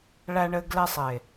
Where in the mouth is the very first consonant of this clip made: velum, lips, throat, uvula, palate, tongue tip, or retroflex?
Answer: retroflex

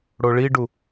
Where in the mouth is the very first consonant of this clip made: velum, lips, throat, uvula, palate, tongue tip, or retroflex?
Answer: retroflex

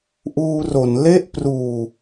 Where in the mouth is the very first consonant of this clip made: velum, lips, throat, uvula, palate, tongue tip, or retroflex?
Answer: throat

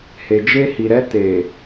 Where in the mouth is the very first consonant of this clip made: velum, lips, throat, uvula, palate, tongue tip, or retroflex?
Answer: throat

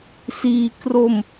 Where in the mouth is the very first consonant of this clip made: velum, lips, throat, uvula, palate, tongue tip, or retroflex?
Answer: tongue tip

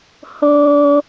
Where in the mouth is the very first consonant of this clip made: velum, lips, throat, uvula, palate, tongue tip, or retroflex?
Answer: throat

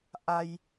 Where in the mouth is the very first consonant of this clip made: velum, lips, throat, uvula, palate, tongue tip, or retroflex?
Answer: throat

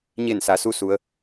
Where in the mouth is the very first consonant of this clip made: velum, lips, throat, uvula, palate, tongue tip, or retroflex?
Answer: palate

